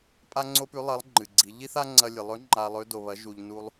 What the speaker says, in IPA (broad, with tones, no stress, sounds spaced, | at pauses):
pʼ a˥ ŋ͡ǀ o˥ p ʉ˧˥ lˠ ɐ˧˥ lˠ ŋ͡ǃ ɨ˩ ɡ͡ǀ i˩˧ ʎ i˥ θ a˥ ŋ͡ǀ ɐ˧ lʲ ɨ˩ lˠ ɵ˧˥ ŋ͡ǃ a˧ lˠ ɵ˧˥ d o˩ β ɐ˩˧ ʒ u˩ ʎ n u˧ lˠ